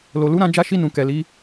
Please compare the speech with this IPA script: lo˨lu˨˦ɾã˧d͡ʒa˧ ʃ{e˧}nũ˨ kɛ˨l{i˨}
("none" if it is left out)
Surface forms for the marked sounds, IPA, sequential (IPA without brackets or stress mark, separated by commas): i˧, i˨˦